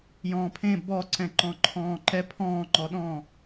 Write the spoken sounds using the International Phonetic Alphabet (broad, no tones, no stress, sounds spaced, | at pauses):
j ɔ̃ː pʰ ẽ b ɔ ǀ ɛ̃ ǃ ɔ̃ ǃʰ ɔ̃ː ǃ ɛ pʰ ɔ̃ː ŋ͡ǃ ɔ ɗ ɔ̃ː